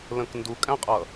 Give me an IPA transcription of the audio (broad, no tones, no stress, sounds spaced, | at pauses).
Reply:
l ə̃ k n d u kʼ æ̃ qʼ ʌ